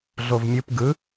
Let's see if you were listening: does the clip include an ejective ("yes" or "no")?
no